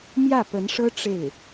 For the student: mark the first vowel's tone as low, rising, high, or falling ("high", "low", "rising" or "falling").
falling